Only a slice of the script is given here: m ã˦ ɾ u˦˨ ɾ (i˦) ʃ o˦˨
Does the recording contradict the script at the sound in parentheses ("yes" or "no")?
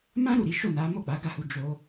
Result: yes